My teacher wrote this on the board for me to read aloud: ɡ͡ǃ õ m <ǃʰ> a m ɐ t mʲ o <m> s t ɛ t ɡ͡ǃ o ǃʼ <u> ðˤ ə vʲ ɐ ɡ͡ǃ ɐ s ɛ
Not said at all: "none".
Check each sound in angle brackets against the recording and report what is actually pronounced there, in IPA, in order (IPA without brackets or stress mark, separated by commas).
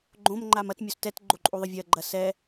ŋ͡ǃ, none, u